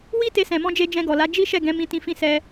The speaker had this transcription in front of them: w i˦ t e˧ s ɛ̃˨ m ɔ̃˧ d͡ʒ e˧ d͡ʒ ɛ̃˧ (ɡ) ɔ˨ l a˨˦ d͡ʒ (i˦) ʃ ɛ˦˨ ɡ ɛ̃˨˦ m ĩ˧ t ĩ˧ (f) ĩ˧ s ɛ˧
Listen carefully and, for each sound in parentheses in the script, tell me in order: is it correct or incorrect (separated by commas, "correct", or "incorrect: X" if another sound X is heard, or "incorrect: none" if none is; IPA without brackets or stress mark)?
correct, correct, correct